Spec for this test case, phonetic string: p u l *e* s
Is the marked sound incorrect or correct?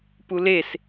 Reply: correct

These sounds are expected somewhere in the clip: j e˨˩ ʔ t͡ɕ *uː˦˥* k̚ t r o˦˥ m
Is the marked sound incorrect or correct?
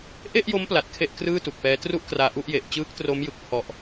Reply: incorrect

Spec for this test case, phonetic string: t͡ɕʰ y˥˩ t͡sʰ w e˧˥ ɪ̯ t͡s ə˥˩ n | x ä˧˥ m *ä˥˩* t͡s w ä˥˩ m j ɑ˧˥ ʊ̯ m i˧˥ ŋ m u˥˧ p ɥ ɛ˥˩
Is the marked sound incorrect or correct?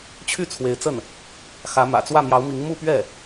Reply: incorrect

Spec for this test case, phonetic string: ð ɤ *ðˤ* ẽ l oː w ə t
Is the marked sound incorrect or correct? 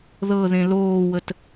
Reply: incorrect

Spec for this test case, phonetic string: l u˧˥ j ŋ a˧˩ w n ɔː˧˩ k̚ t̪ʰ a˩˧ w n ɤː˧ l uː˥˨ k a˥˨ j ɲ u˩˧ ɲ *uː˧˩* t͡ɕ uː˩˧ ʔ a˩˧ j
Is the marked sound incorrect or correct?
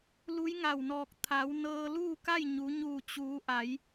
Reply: correct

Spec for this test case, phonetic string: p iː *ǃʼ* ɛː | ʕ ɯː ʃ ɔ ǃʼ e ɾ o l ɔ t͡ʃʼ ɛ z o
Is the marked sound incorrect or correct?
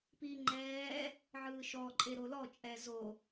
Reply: incorrect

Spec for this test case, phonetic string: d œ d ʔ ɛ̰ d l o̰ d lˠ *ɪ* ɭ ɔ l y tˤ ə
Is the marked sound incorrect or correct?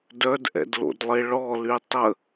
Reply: correct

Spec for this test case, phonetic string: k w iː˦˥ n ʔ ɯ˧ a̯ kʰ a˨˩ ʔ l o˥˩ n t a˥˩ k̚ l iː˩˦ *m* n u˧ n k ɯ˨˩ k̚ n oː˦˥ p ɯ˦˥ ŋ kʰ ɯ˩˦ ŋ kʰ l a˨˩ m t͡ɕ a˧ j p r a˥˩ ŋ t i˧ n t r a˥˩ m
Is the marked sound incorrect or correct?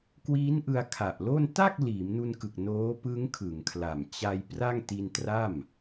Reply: correct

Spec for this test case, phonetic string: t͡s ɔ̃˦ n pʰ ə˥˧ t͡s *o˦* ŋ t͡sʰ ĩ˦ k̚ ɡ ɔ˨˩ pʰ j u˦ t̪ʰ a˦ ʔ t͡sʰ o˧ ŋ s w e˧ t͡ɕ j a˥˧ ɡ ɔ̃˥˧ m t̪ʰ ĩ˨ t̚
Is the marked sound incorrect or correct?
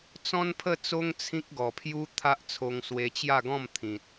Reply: correct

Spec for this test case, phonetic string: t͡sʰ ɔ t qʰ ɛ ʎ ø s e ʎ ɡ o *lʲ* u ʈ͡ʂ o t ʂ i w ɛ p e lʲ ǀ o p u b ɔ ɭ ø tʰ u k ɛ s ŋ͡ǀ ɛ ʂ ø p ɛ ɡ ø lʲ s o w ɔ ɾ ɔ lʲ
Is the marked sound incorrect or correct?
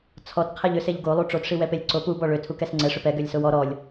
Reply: incorrect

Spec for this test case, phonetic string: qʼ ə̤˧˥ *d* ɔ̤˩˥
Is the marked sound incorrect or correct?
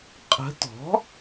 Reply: incorrect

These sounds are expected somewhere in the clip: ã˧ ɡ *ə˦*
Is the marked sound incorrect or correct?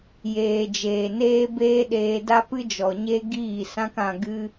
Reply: incorrect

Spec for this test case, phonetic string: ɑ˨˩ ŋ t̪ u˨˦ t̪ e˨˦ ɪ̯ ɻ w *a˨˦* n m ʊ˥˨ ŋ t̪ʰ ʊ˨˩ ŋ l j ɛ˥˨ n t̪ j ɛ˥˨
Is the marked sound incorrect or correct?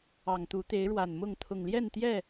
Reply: incorrect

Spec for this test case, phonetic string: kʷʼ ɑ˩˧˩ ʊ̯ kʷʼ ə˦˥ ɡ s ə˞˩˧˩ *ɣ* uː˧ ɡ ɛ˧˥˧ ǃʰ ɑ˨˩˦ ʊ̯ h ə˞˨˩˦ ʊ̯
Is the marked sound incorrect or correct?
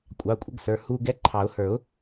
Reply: incorrect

